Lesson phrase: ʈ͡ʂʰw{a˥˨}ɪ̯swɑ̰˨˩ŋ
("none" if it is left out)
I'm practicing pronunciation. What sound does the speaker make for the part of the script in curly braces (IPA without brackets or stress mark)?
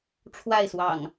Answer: a˥˨